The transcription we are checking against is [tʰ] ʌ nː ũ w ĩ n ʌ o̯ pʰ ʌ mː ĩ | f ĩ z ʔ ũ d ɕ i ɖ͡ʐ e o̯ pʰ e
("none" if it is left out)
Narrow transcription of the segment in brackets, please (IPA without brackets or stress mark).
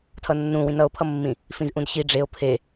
tʰ